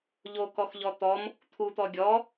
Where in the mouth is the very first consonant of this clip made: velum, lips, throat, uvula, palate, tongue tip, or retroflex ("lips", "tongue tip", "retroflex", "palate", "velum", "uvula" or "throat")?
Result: palate